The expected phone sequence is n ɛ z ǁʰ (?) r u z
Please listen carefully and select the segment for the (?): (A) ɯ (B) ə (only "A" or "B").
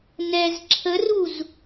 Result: B